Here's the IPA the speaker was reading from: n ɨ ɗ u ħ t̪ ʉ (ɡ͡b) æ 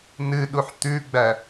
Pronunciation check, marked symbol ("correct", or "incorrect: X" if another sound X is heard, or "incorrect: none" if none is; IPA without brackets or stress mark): correct